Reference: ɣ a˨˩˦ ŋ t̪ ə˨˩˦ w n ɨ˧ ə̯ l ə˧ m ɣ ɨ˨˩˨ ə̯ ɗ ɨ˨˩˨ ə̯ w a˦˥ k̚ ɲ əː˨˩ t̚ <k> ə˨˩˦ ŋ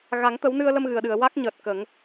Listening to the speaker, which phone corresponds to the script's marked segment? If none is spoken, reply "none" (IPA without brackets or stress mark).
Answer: k